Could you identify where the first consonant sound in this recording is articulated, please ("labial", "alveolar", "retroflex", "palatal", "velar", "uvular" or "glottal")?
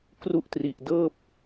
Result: velar